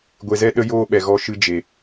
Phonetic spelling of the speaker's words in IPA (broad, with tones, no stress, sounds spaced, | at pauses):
ɡʷ e˨ z ɛ˧ ɗ ə˦ j oː˦ ɓ ɛ˨ ɣ ɔ˧ ʃ ɨ˧ d͡ʒ e˨